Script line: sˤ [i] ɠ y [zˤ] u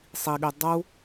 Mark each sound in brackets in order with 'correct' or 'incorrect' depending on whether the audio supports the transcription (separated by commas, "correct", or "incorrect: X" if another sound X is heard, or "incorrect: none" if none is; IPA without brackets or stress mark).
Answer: correct, incorrect: dˤ